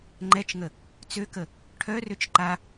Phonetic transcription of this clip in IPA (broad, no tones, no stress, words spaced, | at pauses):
ŋ͡ǃɛt͡ʃŋə | t͡søkə | ʈʰœrøt͡ʃ ǃa